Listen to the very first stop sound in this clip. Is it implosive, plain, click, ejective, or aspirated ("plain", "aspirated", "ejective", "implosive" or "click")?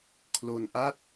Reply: aspirated